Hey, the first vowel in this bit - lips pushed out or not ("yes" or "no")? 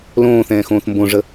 yes